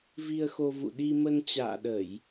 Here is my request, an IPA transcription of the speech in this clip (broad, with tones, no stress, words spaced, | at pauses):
vi˧ə̯xo˧ vṵ˧˨ɗi˧mə˧n t͡ɕa̰ː˧˨ɗə˧˩˨j